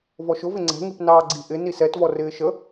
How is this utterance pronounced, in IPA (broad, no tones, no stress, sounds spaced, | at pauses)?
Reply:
v ɔ ʃ ʊ v ɪ ŋ͡ǀ ɛ̤ ŋ i p n ɑː ɡ͡ǀ i ʔ ɪ n i s ɛ t v ɔ r ɪː ʃ ə